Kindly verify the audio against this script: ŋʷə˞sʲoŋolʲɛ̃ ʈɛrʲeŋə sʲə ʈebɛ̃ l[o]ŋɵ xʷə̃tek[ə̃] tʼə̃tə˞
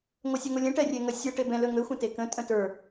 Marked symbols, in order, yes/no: no, yes

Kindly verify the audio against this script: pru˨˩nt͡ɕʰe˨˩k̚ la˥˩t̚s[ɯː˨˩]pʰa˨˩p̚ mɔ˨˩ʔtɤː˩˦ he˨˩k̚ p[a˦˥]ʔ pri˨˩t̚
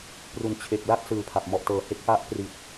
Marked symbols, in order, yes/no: yes, yes

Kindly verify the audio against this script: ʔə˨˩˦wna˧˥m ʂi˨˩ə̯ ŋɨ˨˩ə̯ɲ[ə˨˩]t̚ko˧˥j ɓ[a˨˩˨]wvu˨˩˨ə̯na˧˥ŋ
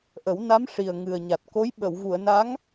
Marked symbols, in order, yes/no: no, no

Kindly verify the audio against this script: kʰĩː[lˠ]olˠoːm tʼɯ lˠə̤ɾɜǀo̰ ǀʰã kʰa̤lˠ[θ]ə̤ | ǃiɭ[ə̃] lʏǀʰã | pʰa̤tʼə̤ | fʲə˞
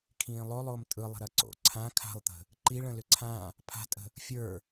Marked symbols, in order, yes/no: yes, no, yes

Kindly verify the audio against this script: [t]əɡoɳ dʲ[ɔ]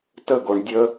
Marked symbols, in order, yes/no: yes, no

